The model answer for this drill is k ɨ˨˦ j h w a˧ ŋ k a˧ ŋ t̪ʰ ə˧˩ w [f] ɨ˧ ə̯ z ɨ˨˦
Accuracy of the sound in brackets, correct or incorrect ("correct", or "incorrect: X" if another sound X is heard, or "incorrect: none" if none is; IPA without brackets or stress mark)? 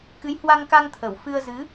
correct